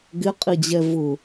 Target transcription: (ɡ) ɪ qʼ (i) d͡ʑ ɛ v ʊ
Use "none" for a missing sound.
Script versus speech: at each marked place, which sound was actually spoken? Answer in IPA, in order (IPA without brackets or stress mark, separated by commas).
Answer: ɡ, i